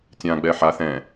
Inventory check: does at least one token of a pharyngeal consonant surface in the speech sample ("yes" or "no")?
yes